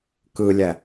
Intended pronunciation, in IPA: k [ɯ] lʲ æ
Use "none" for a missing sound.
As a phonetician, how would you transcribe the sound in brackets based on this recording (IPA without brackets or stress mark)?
ɯ